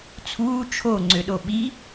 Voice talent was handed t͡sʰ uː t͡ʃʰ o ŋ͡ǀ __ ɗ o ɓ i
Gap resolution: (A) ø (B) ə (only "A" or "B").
A